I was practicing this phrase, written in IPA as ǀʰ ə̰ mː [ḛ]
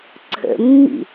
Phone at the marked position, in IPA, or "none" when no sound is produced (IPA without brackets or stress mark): ḭ